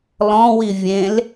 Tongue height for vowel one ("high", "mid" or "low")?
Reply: mid